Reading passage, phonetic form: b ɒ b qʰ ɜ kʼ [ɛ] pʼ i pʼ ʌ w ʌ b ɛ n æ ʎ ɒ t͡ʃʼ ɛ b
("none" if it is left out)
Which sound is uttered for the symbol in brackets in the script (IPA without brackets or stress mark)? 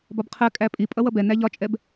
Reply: æ